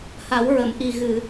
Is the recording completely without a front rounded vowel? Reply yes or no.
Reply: yes